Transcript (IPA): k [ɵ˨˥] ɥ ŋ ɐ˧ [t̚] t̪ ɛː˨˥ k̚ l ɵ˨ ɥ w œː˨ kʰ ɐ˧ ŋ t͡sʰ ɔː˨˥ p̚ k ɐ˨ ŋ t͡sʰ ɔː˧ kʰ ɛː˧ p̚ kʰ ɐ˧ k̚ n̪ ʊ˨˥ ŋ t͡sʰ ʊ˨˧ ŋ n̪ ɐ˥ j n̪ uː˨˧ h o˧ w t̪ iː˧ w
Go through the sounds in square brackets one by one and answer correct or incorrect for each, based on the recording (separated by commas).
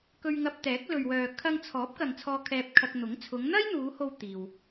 incorrect, incorrect